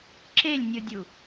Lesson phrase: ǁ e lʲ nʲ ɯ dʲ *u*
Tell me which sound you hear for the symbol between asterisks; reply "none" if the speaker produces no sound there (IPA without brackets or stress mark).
u